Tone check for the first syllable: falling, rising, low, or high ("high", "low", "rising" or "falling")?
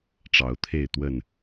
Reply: rising